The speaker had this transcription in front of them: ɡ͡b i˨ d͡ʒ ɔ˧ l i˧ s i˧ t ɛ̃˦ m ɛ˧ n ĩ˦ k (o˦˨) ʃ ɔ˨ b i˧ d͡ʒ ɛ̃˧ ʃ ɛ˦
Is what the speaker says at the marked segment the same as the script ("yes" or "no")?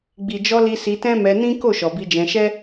yes